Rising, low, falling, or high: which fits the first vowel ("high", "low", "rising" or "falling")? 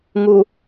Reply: low